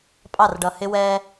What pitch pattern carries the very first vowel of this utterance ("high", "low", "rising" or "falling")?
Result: falling